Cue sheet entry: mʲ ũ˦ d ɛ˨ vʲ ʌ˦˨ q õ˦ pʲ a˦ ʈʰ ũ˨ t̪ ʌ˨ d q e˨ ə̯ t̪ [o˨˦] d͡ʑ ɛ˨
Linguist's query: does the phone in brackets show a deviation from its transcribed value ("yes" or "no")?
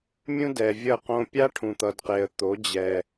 no